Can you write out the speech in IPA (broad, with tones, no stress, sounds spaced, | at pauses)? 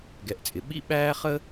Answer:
ɡ ɛ˩ ʔ t͡sʼ ɪ˩ ɓ ḭ˦ ɓ æː˦ χ ə˥